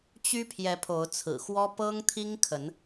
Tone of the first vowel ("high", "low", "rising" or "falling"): high